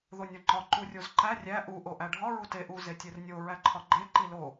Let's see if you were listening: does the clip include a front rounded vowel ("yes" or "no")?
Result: no